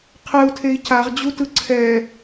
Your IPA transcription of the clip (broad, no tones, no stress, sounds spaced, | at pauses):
qʰ ɛ u̯ tʰ e i̯ c a ʁ d͡ʑ u t ɯ ǀʰ ɛ